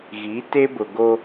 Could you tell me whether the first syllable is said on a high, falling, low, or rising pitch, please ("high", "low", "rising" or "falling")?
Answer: rising